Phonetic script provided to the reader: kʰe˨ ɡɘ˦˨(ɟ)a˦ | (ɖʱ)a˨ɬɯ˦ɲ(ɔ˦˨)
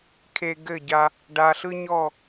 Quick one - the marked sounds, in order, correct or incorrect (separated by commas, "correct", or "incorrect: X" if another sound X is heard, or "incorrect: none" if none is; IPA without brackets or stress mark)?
correct, incorrect: ɖ, correct